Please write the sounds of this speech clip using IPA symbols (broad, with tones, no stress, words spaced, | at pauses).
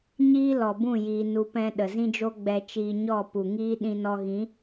ɲiː˦lɔ˨ bũ˦˨ jiː˧nu˧ pɛ̃˧ ɗə˨zĩ˦d͡ʒo˦ ɡ͡bɛ˧t͡ʃiː˧ɲɔ˦˨ pu˨ŋiː˦ ɗĩ˧nɔ˧ɣĩ˨˦